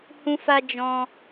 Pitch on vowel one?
high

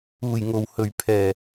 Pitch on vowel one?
low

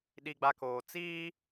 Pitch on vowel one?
low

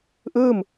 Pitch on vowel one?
falling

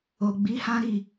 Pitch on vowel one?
low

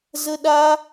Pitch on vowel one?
high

